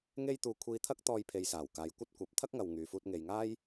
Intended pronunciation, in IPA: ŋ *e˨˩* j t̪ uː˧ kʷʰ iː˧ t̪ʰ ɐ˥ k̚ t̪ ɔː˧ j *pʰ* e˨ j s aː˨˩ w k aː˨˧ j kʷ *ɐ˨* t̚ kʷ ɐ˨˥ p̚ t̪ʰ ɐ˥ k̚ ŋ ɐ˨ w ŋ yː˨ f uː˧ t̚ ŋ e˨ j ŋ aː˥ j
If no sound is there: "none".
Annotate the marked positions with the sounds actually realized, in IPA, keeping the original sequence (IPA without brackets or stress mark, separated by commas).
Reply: e˥, pʰ, ɐ˥